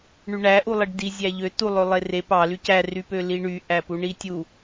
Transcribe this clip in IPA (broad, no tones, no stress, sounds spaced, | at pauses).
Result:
ɳ y ɳ æ ʔ u lˠ i ɖ d i zʲ æ ʎ ø t u lˠ ø lˠ e r e p ɑ l y c æ r y p ø l i ɳ y ʔ æ p u ɳ i tʲ u